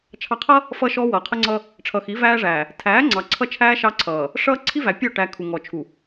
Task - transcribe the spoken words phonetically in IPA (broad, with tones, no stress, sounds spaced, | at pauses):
t͡ʃʰ ɑ˨ qʰ ʌ˦ | f ʌ˦ ʃ ɔ˦ w ʌː˨ qʰ ə˦ ŋ͡ǀ ʌ˦ | ʈ͡ʂʰ ʌ˨ x i˨˦ v æː˦ ʐ æː˨ | tʰ æː˨˦ ŋ͡ǀ ɑ˨ ǀʰ ʌ˦ t͡ʃʰ æː˦ ʃ ɑ˦ ǀʰ ʌː˨ | ʂ ʌː˦ ǀʰ i˦ v æ˨ pʲ ɔ˦˨ ʈ æ˨ kʰ u˨ ŋ ɔ˨ t͡ʃʰ u˨